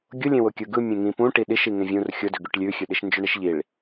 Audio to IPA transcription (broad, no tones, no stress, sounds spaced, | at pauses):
ɡʲ ʊ lʲ ẽ w ʊ kʲ ɯ ɡ ɯ mʲ ẽ ŋ ĩ p ũ ʈ i ɗ i ʃ i ŋ ẽ vʲ ũ r xʲ ʊ d ʏ ɡ ʉ ʈ lʲ ʉ xʲ ʉ ɗ i ʃ n d͡ʒ ʏ ɳ i ʃ ʎ i ɭ